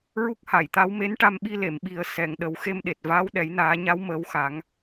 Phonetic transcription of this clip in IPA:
ɹ u˦˥ k̚ h a˨˩˨ j t̪ a˧˥ w m e˧˥ n ʈ a˧ m ɓ i˧ l e˨˩˨ m ɓ i˨˩˦ ə̯ s ɛ˨˩˨ ŋ ɗ ə˨˩˦ w x e˧ m ɗ e˨˩ t̚ v aː˧˥ w ɗ ɛ˨˩˦ j n aː˨˩˦ ɲ a˧˥ w m əː˧˥ w x a˨˩˦ ŋ

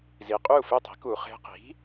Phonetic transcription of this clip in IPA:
z i˩ qʼ y˥˩ u̯ f e˥˩ tˤ i̤˩˥ k u˩ χ e̤˧ q i̤˩˥

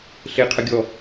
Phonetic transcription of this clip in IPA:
ɬ e qʰ ə ɡʲ ɔ

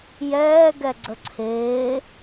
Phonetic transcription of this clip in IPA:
j ɛː ɡ ɛ ɡ͡ǀ ə ǀʰ eː

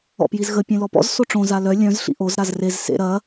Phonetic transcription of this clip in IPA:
ɔ̰ p j i z ɣ ə pʲ ẽ l ɔ p ɔ̰ z s o ʈ͡ʂ õ z a l œ lʲ œ̃ z ɬ ḭ ʔ o z ɾ a z r e z s ḛ ɾ ɐ

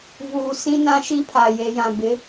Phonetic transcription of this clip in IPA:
v uː˨ s ĩ˦ n ã˦ ʃ i˦ pʰ a˨ j e˨ j ã˨ b ɪ˨˦

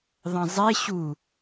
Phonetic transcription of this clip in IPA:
ðˤ ɐ̃ zˤ e ɕ u

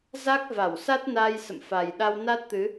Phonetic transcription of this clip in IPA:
z a˦˥ k̚ v a˧˩ w s a˦˥ t̚ n a˧ j s ə̰˧˨ m f a˨˩ j ɗ a˧ w n a˦˥ t̚ t̪ ɨ˨˦

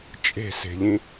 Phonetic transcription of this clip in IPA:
t͡ʃʼ e̤ s e̤ ʎ ĩ

